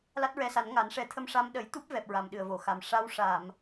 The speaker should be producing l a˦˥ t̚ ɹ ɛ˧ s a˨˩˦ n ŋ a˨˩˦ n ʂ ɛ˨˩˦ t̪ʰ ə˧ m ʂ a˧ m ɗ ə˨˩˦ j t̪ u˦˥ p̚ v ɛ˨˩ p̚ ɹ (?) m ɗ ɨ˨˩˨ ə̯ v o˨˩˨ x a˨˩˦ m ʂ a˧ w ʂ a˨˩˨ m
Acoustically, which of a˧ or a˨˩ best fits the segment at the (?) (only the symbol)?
a˨˩